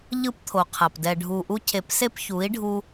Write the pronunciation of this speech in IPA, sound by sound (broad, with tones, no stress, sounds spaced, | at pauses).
ʎ ɯ˦ p t̪ʰ o˨ qʰ a˨ p d ɛ˨ ɖʱ u˨ ʔ u˧ cʰ e˨ p s e˦ p ç u˨˦ i̯ ɖʱ u˧